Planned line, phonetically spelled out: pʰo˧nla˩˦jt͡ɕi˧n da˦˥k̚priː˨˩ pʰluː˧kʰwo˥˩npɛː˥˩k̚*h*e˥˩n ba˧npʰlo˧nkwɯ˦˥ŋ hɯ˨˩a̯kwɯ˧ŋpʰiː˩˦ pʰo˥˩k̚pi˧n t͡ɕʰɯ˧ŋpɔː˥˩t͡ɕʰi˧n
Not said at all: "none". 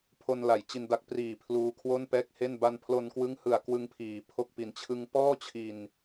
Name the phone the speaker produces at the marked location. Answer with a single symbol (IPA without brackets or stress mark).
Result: h